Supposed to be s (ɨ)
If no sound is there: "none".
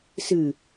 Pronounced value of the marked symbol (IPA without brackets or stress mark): ɨ